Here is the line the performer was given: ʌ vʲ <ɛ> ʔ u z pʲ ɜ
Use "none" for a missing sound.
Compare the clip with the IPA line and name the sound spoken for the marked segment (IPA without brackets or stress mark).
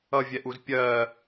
ɛ